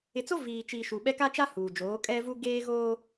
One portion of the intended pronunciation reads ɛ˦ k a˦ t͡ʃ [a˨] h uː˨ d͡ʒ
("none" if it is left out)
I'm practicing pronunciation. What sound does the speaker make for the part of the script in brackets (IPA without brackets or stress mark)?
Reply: a˦